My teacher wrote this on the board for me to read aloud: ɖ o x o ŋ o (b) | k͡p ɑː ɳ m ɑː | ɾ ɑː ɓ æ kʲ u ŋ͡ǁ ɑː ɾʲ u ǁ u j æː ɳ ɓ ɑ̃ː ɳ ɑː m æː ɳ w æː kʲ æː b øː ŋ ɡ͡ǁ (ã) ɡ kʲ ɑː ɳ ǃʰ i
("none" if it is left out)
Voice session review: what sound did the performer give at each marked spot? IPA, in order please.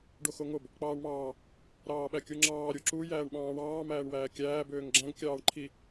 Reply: b, æ̃

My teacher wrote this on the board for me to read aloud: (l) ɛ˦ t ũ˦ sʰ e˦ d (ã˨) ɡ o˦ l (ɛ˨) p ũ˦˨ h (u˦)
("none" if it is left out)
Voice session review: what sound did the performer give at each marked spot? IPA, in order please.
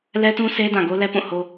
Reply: l, ã˨, ɛ˦, o˦

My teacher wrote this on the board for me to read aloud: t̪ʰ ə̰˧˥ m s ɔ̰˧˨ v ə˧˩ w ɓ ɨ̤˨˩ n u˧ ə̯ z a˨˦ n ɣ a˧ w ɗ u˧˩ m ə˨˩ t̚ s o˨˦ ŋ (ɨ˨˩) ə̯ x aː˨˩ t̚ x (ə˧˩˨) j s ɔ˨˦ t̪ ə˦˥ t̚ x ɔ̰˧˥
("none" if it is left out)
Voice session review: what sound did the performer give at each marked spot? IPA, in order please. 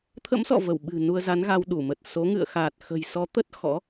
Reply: ɨ̰˧˨, ə̤˨˩

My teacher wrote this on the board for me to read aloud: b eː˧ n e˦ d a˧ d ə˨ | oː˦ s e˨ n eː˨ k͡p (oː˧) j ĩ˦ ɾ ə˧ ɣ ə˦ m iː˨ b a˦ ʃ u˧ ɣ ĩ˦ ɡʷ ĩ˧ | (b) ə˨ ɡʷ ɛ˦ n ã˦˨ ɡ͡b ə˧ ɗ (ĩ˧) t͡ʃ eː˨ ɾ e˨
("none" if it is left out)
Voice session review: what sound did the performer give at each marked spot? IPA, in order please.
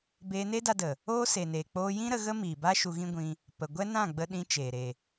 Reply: oː˧, p, ĩ˧

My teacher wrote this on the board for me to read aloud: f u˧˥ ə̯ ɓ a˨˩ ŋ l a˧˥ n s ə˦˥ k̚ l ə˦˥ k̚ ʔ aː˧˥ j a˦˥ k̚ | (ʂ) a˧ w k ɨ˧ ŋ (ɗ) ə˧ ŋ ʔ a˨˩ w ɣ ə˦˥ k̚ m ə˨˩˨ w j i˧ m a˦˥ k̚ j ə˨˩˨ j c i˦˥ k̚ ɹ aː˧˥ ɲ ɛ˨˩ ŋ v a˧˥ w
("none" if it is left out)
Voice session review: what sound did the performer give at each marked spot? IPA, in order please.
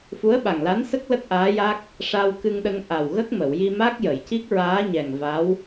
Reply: ʂ, ɗ

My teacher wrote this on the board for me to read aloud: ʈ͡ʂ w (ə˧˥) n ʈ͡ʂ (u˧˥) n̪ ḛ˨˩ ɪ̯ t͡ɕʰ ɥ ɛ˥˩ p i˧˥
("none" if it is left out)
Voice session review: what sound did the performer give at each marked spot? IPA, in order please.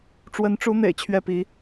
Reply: ə˧˥, u˧˥

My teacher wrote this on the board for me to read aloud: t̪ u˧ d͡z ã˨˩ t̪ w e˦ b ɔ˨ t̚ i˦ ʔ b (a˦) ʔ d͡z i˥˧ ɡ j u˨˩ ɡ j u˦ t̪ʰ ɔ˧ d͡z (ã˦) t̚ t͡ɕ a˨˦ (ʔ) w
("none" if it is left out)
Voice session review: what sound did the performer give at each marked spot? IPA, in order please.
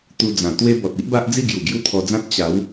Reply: a˦, ã˦, none

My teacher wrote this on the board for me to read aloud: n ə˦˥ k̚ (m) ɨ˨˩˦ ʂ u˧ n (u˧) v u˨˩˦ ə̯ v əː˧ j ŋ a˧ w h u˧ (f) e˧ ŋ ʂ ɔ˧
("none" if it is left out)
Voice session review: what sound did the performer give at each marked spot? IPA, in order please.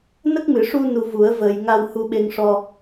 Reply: m, u˧, ɓ

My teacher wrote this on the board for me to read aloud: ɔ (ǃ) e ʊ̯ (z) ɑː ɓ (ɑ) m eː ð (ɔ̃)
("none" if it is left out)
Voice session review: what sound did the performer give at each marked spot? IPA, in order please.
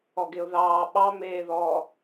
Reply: ɡ, ð, ɑ, ɔ

